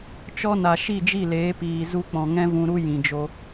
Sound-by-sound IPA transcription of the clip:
t͡ʃ ɔ˦ n a˨ ʃ i˦˨ d͡ʒ i˦˨ l eː˨˦ p iː˨ z u˧ k͡p ɔ̃˨ ŋ ɛ̃˦ v ũ˧ ɾ u˦ j ĩ˨ d͡ʒ o˧

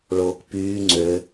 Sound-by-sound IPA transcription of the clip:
ɭ oː k p yː ŋ͡ǀ ø

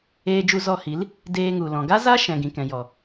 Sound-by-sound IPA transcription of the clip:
eː˧ d͡ʒ u˧ z ɔ˧ h i˨˦ l | d eː˧ ŋ u˨ l ɔ̃˨ ɡ a˦ z a˦ ʃ ɛ̃˨ ɡ ĩ˨ k ɛ̃˨ j ɔ˨

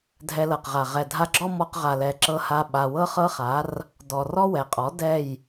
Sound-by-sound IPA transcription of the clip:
dʱ ɛ˧ l ɤ˨ q ʁ a˨ ʁ ɛ˨ dʱ a˧ ɡ͡ǁ ɔ˦ m ɔ˧ q ʁ a˨ l ɛ˨ ǁ ɤ˧ h a˧ ɓ a˨ w ɤ˦ χ ɤ˦ χ a˨˦ r | d ɔ˨ r ɔ˦ w ɛ˨ qʼ ɔ˨˦ d ɛ˦˨ j

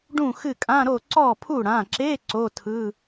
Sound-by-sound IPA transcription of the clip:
ɖ ũ˥˩ x ɨ˥˩ kʼ ã˧˥˧ ɾ o˥˩ ǀ ɔ˥˩ pʰ u˥˩ ɽ ã˩˧˩ ǁ e˧˥˧ ǀ o˧˥˧ tʰ ɯ˧˥˧

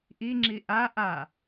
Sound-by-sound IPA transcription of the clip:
ʔ i ŋ͡ǁ i ʔ a ʔ a

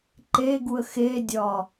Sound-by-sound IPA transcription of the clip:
ǃ e ɡ u ə̯ x e dʲ ɒ

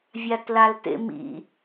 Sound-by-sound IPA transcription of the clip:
vʲ a t l a l t ḛ m ḭ

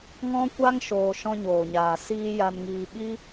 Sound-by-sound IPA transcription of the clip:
ŋ ɔ̃˦ kʷ a˦ ŋ ʃ oː˧ ʃ ɔ̃˧ ɲ oː˨ ɲ aː˨ s iː˧ j a˧ n ŋ iː˧ ɓ i˦

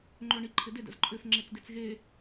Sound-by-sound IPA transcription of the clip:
ŋ͡ǃ ø ɳ i ǃʰ ɪ d ɪ d ə̰ z ǃʼ ʏ f ŋ͡ǁ e t͡s d e t͡s ɣ e

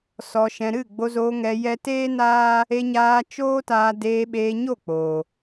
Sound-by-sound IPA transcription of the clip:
s ɔ˨ ʃ ɛ̃˨ ɾ ɨ˦˨ ɡ͡b o˧ z oː˧ ŋ ɛ˧ j ɛ˦ t eː˦ n aː˦ | e˧ ɲ aː˧ t͡ʃ oː˦ t aː˧ d eː˧ ɓ eː˧ ɲ o˦˨ k͡p oː˨

